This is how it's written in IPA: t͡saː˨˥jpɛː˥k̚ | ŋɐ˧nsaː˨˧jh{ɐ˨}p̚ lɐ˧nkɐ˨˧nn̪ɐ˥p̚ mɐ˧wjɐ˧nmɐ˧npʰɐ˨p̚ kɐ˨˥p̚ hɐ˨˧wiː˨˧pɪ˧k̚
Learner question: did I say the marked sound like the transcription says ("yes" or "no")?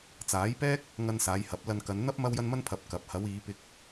no